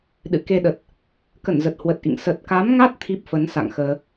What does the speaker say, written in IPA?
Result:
ɗɨ̰˧˨ ke˧ɗə˨˩t̚ | kə˧˩nzə˨˩t̚hwə˨˩t̚ʔḭ˧˨ŋ sə˨˩t̚ka˨˦mŋa˦˥t̚ t̪ʰi˦˥p̚fə˨˦n sa̰˧˨ŋxəː˧

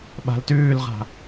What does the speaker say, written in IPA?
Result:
ɓa̤ltʉːlʁa̤

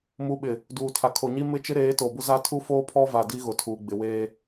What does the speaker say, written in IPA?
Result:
mu˨ɓɪ˨ | duː˨tʰa˨ kʰo˨ɲi˦ mɪ˦t͡ʃɪ˦ɾeː˨˦ to˨bʊ˦za˦ tʰu˦foː˦pʰɔ˦va˨ di˦ɣʊ˨tʰuː˨ ɡ͡bɪ˨weː˦

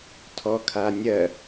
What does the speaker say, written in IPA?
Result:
tʰɔkʰanʲɜ

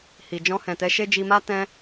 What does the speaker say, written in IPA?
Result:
hi˨ d͡ʒɔ̃˧hɛ̃˨tɛ˨˦ʃe˦ d͡ʒi˧ma˦ tɛ̃˦

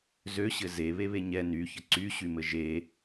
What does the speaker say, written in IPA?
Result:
zøɕɘ ze βeβeɲɛ nyçə ǀyɕymɘ ʒe

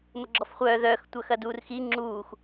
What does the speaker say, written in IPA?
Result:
məɡ͡ǁɔfχʷœː ðœːxtʷœxɐduːr xi ŋ͡ǁuːx

